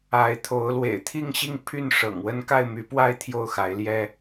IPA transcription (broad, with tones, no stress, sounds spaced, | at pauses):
a˨˦ ɪ̯ t̪ʰ o˨˦ ʊ̯ l w ḛ˨˩ ɪ̯ t̪ʰ i˥˨ ŋ ɕ i˥˨ ŋ pʰ y˥˨ n ʂ ɤ̰˨˩ ŋ w ə˦ n k a˥˨ ɪ̯ m y˨˦ p w a˥˨ ɪ̯ t̪ʰ j o˥˨ ʊ̯ x a˨˦ ɪ̯ l j ɛ˦